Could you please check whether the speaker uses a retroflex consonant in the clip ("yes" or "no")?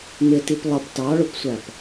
yes